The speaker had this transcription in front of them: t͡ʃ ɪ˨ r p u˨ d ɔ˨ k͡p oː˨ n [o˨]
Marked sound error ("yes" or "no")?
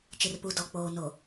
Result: no